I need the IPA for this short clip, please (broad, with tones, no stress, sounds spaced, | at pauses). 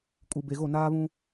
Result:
kʼ u˨ b e˨ ɣ o˦˨ n aː˦ β ũ˦